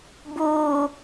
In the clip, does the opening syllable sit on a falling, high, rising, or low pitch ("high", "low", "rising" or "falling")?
low